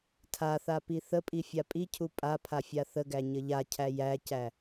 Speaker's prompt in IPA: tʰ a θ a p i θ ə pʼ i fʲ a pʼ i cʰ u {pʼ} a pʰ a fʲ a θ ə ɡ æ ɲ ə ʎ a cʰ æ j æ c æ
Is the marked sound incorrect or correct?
correct